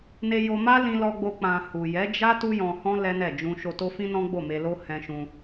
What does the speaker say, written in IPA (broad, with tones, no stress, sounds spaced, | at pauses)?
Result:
n e˧ j o˧ m a˦ l ĩ˧ l ɔ˧ ɡ͡b o˧ k͡p ã˧ h u˨ j ɛ˨˦ d͡ʒ a˦ t u˦ j ɔ̃˧ h ɔ̃˦ l ɛ˦ n ɛ˦˨ d͡ʒ ũ˧ ʃ o˧ t o˦ f ĩ˦ n ɔ̃˦ ɡ͡b o˦˨ m e˧ l o˦ h ɛ̃˦ ʃ ũ˦